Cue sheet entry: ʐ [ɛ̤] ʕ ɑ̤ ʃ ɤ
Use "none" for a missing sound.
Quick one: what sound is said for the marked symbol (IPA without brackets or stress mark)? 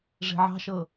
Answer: e̤